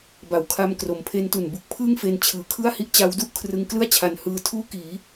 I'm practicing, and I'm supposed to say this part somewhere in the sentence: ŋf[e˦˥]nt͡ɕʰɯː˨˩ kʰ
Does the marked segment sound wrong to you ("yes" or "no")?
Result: yes